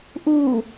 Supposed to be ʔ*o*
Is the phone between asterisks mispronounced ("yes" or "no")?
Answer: yes